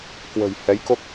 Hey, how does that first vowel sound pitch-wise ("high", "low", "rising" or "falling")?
low